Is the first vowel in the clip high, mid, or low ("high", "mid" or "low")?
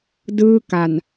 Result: high